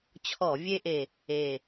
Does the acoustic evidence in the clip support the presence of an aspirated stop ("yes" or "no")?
yes